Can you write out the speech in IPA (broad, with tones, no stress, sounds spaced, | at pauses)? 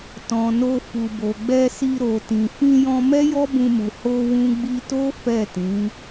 t ɔ̃˨ n o˧ f u˨ b o˨ ɡ͡b ɛ˧ s i˧ ɾ o˨ t ĩ˨ f ĩ˧ j ɔ̃˧ m ɛ˦ j ɔ˦ b ũ˧ m u˨ h o˧ w ũ˧ ɡ͡b i˧ t o˦ f ɛ˦˨ t ĩ˨˦